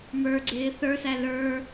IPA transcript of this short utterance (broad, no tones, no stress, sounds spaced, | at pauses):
m ə˞ ɡ͡ǀ ɪː θ ə˞ s æ l ə˞